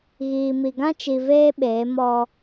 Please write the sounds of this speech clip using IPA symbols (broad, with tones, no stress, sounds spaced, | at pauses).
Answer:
ɣ iː˨ m i˨ ɡ ã˦ t͡ʃ i˨ v eː˦ ɓ eː˨˦ m ɔ˦